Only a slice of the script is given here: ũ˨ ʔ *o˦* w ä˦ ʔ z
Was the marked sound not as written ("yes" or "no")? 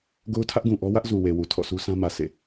yes